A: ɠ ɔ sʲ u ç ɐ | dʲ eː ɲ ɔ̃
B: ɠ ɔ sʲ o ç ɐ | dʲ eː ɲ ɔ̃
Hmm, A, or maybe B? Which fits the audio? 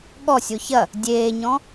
B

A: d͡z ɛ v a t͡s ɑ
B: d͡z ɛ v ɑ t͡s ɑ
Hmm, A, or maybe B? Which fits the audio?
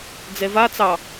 A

